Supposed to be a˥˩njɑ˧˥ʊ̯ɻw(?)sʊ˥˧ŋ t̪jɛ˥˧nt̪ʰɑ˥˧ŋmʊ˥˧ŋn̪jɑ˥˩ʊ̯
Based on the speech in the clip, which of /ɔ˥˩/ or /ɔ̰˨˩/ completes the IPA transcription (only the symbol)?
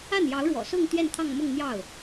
ɔ̰˨˩